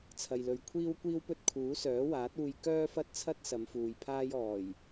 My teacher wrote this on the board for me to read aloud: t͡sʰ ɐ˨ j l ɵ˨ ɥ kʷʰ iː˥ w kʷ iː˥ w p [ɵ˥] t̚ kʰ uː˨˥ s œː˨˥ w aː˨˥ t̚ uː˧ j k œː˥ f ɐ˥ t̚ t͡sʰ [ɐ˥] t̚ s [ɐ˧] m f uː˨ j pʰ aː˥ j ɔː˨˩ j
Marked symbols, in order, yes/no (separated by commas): yes, yes, no